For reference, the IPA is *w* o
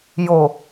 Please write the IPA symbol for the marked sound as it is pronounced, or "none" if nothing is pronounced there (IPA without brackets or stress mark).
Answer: j